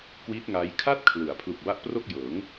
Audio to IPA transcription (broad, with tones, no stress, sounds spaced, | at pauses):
k w i˦˥ t̚ ŋ a˦˥ j kʰ a˥˩ t̚ kʰ l ɯ˩˦ a̯ pʰ l u˨˩ k̚ b a˦˥ ʔ p r o˥˩ k̚ j ɤː˩˦ ŋ